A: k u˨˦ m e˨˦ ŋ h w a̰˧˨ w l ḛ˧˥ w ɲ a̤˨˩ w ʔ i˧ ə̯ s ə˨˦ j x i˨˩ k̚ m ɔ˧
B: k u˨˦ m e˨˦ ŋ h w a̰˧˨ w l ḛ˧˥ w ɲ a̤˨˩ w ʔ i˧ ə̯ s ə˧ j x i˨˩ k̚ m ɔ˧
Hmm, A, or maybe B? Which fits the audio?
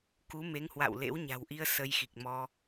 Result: B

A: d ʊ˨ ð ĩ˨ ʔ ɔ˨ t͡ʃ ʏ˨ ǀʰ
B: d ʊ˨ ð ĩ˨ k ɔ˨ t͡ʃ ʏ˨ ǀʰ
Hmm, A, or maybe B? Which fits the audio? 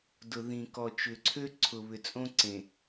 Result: B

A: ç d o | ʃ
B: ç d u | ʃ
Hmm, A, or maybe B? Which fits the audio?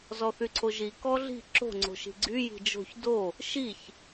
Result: A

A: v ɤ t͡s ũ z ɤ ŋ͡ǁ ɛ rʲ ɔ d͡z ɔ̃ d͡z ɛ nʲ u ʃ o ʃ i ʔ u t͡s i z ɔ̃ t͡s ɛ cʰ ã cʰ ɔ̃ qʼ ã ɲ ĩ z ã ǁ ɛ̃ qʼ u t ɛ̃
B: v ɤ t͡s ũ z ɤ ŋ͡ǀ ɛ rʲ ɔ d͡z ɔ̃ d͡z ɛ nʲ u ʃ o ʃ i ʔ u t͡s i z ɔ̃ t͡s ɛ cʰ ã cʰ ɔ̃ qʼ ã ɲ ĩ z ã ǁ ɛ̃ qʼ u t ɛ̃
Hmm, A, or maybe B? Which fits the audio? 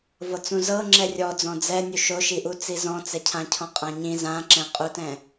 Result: A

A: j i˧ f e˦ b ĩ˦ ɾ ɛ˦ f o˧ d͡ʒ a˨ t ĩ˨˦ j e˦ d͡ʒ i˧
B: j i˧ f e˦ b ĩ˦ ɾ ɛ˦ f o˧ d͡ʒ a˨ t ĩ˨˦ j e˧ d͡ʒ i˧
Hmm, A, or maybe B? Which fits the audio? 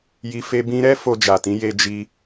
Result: B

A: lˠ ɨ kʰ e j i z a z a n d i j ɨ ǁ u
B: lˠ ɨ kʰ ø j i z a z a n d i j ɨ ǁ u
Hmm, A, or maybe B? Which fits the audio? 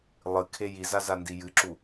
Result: A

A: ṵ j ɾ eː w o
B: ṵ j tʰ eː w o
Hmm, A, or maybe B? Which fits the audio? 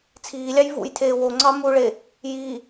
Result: B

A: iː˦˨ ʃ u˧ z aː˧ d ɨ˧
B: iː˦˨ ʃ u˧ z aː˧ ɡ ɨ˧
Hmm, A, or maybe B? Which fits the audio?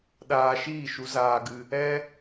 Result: B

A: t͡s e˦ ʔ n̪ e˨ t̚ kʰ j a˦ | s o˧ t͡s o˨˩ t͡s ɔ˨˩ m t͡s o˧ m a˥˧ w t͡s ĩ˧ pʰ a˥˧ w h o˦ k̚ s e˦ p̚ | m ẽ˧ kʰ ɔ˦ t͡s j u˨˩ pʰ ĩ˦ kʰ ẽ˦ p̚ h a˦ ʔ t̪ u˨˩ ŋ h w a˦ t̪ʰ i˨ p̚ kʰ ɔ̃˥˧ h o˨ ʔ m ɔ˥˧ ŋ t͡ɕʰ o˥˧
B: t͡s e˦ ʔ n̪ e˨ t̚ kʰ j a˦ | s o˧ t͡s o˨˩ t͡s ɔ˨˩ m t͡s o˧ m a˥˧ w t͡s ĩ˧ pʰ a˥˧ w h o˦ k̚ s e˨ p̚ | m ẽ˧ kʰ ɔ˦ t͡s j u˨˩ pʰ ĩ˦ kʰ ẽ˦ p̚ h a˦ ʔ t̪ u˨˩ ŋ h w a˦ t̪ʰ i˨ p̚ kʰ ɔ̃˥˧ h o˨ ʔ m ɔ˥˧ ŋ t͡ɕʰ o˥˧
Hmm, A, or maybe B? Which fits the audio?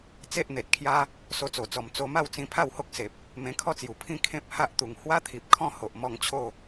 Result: B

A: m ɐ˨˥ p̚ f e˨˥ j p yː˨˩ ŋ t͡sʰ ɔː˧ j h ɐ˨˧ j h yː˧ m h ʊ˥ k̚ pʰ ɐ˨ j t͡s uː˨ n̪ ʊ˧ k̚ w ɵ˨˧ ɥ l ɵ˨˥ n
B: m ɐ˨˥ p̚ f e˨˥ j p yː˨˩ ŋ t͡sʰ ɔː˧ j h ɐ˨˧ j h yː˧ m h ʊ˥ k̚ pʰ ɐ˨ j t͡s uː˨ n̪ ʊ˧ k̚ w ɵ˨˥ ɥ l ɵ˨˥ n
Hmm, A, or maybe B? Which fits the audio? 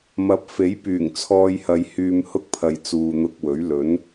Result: B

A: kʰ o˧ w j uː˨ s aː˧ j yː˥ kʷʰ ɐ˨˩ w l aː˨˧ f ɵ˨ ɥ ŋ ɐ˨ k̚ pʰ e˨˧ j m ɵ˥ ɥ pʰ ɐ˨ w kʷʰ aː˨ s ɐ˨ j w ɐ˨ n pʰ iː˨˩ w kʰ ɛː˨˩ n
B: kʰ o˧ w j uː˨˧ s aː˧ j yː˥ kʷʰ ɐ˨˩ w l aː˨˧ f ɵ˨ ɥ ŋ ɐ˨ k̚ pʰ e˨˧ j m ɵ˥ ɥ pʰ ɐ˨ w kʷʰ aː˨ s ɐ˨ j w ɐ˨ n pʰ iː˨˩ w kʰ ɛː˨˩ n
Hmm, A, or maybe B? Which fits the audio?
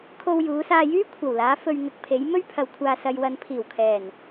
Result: B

